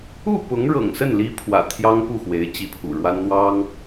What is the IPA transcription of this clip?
u˥˩ p ʊ˧˥ ŋ ɻ ɤ̰˨˩ ŋ s ə˥˩ n l i˥ pʰ w ä̰˨˩ t̪ʰ j ɑ˥ ŋ p u˥˩ x w e˧˥ ɪ̯ t͡ɕ i˧˥ pʰ ṵ˨˩ ɻ w a˥ n n̪ w ɑ˥ ŋ

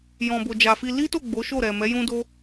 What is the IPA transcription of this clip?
j ɔ̃˨ b o˨ d͡ʒ a˨ f i˧ l i˦ t o˦˨ ɡ͡b o˨˦ ʃ o˦˨ ɾ ɛ˨ m ɛ˨˦ j ũ˦ d o˦

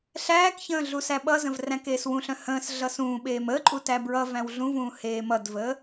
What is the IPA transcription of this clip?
ɬ æː k ç ə̃ː ɮ u s æ ɓ ʌ z ə̃ v r æ̃ k eː s w ũ ɬ œ̃ h ə̃ː s ɮ ʌ s ũː ɓ eː m əː ǃʼ u t æ b ɹ ʌ v æ̃ w ɮ ũ v ũː h eː m ʌ d v əː

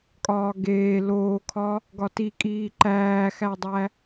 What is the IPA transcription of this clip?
kʼ ɒː ɡ eː l oː kʰ ɒ | ɡ ɒ t i kʼ iː ǃ æː x æ dˤ æ

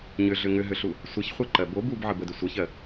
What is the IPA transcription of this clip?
ɲ ʏ ɮ ʏ ŋ ʏ ɦ ʏ ɬ u | sʷ ə ç χʷ ɜ ǃ ɜ b o b u b ʕ ə b ə d ʏ sʷ ə ç ɜ

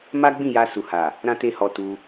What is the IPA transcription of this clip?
m a˦ ɡ͡b ĩ˦˨ j a˧ s u˨ h a˨ | ɾ ã˦ t e˦ h ɔ˧ t u˧

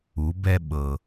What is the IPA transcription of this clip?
u˩˧ b ɛ˧ ɓ ɤ˩

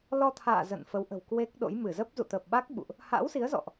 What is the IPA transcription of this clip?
l ɔ˧ t̪ʰ a̰ː˧˨ z ə̰˧˨ n f ə˨˦ w ʔ ə̤˨˩ w k w e˦˥ k̚ ɗ o̰˧˥ j m ɨ˧˩ z ə˦˥ p̚ z ṵ˧˨ t̪ ə˨˩ p̚ ɓ a˦˥ k̚ ɓ ṵ˧˨ ʔ | h a̰ː˧˥ w s i˨˦ ə̯ z ɔ̰˧˨ ʔ

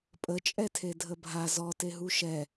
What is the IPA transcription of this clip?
pʼ ə t͡ʃʼ ɛ tʰ e dʱ ə bʱ a z ɔ t e ɦ u ʃ ɛ

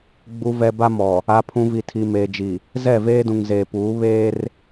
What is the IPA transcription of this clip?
ɡ͡b u˨ v ɛ˨ b a˦ m ɔ˨ | a˨ pʰ ũ˨ v i˨ tʰ i˨ m eː˨ d͡ʒ i˨ | z ɛ˦˨ v eː˦ d ũ˨ ŋ z eː˨ p uː˨˦ β eː˦ r

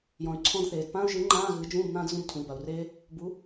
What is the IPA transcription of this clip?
j ɔ̃˩ y̯ ǀʰ ɔ̃˧˥˧ d θ eː˩ d p ãː˥ u̯ ʒ ɨː˨˥ ŋ͡ǃ ãː˧˥˧ ɣ ɨː˨˥ d͡ʒ ũː˧˥˧ b n ãː˥ d z ũ˧˥˧ b tʰ ũ˩ i̯ b a˩ u̯ r eː˥ | b u˨˥

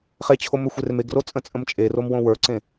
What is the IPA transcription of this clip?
χ e t͡ɕʰ o m ɵ xʷ e r m e ɡ r o t͡sʼ ə̃ t͡sʼ ə̃ m t͡ʃʼ e r o m w õ w ə˞ ǀ ẽ

